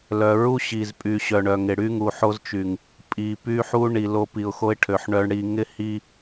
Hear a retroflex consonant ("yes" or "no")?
yes